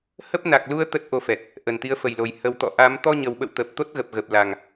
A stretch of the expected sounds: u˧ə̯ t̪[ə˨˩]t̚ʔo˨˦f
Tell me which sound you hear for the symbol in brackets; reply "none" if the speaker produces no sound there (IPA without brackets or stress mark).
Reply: ə˦˥